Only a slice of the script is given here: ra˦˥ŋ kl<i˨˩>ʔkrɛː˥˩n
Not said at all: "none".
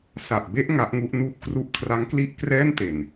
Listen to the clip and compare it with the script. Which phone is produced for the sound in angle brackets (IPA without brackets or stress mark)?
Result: i˥˩